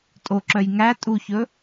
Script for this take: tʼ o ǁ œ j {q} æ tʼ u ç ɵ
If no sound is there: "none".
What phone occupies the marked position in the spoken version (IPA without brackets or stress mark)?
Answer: ŋ